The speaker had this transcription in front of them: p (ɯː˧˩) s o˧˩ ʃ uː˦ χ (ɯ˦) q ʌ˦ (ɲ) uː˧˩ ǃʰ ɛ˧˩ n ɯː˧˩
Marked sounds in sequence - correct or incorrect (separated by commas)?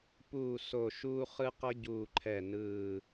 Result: incorrect, correct, incorrect